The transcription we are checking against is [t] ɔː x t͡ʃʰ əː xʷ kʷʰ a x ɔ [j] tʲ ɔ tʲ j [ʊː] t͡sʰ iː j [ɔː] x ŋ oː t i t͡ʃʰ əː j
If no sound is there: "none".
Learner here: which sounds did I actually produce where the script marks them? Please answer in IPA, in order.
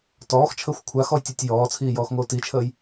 t, j, ɔː, ɔː

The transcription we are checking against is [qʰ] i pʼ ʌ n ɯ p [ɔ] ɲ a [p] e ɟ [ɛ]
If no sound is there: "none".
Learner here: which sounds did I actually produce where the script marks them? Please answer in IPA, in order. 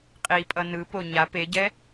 qʼ, o, p, ɛ

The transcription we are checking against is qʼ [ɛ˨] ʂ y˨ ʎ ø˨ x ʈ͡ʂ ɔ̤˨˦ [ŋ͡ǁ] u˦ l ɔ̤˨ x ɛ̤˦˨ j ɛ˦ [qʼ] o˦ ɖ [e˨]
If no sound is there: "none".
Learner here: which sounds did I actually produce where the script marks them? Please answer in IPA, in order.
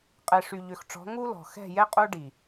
ɛ˨, ŋ, qʼ, i˨

